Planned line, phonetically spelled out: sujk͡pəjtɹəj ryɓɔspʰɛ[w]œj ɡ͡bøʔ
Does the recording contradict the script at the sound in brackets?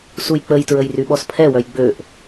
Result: no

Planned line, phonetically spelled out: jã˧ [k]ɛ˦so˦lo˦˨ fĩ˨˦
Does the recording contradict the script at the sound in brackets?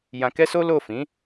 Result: no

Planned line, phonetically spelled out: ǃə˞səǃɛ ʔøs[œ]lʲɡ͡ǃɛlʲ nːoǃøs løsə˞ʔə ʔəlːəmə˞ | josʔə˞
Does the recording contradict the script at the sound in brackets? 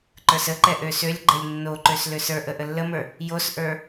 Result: yes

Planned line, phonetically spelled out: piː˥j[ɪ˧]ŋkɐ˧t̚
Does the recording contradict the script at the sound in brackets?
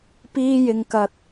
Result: no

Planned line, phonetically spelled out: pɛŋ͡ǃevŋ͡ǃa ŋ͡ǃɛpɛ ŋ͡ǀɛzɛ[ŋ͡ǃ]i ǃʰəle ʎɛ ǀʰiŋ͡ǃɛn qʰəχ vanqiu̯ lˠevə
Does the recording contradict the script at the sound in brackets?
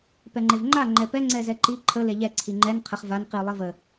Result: yes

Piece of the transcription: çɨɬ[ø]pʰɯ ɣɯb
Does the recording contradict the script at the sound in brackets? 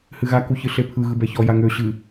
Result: yes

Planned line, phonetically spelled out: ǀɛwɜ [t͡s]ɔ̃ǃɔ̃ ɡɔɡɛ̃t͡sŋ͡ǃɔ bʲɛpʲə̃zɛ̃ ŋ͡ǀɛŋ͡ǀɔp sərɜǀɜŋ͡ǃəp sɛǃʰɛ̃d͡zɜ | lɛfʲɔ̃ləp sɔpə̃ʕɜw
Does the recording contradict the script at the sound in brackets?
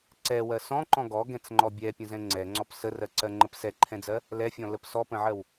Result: yes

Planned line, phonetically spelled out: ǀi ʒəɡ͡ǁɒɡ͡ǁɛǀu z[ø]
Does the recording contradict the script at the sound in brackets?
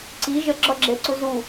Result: yes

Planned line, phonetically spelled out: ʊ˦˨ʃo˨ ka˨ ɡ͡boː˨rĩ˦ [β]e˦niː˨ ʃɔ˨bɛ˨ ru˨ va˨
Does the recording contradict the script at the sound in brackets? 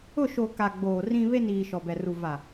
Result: no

